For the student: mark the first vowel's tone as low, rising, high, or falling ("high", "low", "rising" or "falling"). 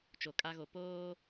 low